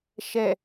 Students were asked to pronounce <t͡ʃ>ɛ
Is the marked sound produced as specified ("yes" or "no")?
no